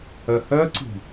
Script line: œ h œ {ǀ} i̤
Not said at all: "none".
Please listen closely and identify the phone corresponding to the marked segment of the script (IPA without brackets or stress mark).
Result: ǀ